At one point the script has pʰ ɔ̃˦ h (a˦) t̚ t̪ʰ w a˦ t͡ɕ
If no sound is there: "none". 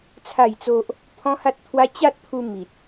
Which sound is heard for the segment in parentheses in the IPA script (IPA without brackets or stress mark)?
a˦